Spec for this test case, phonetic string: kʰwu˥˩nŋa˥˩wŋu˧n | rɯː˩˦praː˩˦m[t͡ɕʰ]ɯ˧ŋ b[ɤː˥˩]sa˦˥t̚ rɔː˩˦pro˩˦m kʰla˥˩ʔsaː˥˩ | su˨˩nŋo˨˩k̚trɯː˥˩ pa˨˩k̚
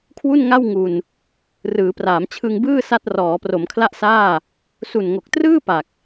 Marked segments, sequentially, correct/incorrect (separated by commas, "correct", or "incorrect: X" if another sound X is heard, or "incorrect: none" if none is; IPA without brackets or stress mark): correct, incorrect: ɯː˥˩